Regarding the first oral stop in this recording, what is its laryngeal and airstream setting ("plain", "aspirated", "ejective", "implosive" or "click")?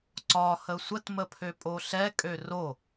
click